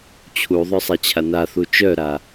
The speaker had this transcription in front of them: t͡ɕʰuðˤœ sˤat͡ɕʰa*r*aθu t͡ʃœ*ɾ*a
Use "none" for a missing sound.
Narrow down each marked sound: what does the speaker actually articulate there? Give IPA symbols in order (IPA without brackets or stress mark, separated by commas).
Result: n, ɾ